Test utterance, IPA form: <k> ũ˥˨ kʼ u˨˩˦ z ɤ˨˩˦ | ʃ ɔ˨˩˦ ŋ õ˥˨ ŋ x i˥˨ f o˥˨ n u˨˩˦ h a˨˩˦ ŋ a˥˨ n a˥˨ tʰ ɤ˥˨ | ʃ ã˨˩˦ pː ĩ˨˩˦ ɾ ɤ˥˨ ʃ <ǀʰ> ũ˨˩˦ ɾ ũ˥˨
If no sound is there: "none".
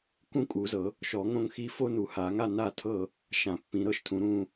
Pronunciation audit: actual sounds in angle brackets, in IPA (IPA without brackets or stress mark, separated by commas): k, tʰ